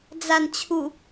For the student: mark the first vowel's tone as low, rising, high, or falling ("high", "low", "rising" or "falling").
low